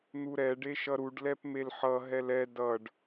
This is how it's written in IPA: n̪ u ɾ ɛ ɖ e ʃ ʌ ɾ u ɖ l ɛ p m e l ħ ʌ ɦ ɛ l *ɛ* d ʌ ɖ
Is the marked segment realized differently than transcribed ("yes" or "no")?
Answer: no